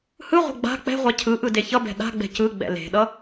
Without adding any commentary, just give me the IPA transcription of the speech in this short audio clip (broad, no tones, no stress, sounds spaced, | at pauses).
h ɯ ʁʷ ɛ̤ ɡ͡b a̤ k͡p ɛ̤ ʁʷ a cʰ ɯ ʔ ɯ d e ç ʌ b ɛ̤ ɗ a̤ ɡ͡b ɛ̤ c ɯ ɡ͡b ɛ̰ l e̤ ɗ ʌ